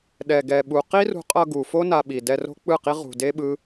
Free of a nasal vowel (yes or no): yes